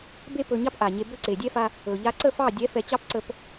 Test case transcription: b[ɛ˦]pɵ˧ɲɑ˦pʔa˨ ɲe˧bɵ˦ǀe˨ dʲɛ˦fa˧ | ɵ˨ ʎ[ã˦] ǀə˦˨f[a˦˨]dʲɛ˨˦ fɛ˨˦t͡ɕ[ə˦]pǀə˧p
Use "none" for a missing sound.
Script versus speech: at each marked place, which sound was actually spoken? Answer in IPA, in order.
e˦, a˦, ɑ˦˨, ɑ˦

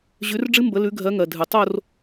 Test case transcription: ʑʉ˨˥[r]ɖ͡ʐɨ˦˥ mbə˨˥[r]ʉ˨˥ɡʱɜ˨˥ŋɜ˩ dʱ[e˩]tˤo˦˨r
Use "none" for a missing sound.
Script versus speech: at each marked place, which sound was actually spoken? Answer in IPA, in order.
r, l, ɨ˩

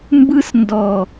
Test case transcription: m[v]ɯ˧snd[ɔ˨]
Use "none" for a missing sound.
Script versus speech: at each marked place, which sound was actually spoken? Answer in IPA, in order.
b, ɔ˨

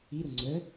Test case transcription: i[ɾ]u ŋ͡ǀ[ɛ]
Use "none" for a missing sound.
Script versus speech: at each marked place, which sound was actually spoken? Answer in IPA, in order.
ɾ, ə

